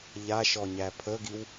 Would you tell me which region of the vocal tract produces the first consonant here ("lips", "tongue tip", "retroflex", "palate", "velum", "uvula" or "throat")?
palate